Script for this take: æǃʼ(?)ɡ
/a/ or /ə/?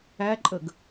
ə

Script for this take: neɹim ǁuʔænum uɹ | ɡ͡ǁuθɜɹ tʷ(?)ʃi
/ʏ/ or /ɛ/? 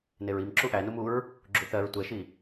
ɛ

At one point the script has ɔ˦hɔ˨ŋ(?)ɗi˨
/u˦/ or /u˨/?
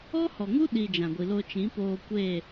u˦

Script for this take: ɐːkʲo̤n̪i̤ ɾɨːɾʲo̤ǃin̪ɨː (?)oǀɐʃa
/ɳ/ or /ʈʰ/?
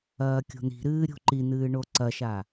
ɳ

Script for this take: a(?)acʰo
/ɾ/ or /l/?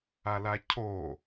l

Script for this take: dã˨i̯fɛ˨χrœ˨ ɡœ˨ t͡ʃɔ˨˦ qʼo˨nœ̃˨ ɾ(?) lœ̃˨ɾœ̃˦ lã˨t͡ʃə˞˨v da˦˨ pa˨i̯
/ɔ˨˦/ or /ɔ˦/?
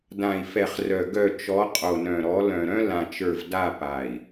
ɔ˨˦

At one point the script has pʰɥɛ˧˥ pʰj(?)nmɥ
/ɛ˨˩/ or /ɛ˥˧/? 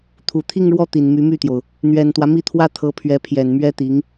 ɛ˨˩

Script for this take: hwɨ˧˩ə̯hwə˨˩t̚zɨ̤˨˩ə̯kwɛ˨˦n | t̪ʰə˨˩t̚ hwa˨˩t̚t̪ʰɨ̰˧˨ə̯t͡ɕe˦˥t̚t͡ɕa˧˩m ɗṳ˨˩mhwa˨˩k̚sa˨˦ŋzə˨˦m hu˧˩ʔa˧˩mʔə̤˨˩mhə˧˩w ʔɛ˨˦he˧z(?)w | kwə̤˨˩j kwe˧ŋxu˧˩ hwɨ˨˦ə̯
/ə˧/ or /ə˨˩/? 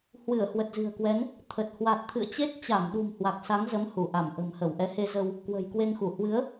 ə˧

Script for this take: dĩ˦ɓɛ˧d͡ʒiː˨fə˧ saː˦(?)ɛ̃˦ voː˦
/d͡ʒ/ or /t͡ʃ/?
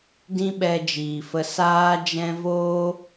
d͡ʒ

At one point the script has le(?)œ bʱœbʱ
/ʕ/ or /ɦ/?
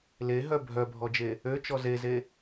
ɦ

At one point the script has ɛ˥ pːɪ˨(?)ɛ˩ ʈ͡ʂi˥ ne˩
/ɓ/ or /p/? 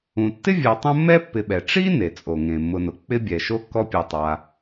ɓ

